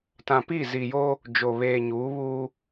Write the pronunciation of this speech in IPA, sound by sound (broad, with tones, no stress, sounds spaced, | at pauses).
t ã˨ p i˦˨ z i˨ j o˦ | d͡ʒ o˨ β eː˨ ɲ uː˨˦ β uː˦